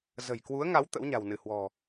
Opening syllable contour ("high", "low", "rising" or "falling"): low